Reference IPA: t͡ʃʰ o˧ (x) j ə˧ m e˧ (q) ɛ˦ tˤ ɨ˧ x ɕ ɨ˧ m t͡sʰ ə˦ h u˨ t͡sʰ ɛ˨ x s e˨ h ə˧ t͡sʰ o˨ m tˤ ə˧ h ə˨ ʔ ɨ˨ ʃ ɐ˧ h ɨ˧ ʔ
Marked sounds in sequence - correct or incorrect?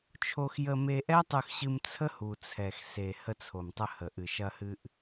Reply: correct, incorrect: ʔ

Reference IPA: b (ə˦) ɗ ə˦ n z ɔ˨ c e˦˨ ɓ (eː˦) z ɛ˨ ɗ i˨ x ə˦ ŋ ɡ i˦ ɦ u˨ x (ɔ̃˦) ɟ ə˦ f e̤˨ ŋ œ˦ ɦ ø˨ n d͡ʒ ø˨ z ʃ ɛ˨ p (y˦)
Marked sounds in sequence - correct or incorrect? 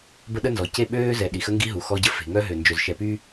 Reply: correct, incorrect: øː˦, incorrect: ɔ˦, correct

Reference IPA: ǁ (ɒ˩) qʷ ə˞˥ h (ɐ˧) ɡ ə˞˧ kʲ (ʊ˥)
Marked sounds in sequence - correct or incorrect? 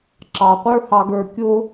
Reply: incorrect: ɑ˩, incorrect: ɑ˧, correct

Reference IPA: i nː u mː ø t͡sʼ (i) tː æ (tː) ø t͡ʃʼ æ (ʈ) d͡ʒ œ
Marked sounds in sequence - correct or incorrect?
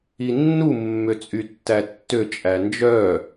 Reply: incorrect: y, correct, incorrect: n

